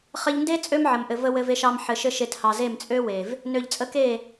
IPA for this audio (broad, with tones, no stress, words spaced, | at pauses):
χɘ˧ʎnde˦ t͡sʼø˦mʕə˨mʔɘ˨ və˦ wɘ˧ve˧ ʃɑ˧m ħɘ˨ʃɘ˧ ʃe˧thɑ˨ze˦˨m t͡sʼø˦we˨v | nø˨ʎt͡sʼə˧ke˦˨